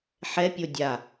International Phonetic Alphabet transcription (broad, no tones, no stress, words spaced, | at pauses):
ħɛpʲo dʲa